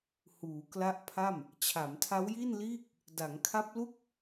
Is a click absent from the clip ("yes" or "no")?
yes